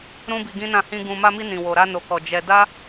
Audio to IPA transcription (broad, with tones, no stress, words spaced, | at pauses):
ɾũ˦bi˧ɡĩ˦nã˦˨ hĩ˧ ɡũ˨ma˧mi˧ nĩ˨wo˨ɾa˧ no˨kɔ˨ d͡ʒɛ˧ da˦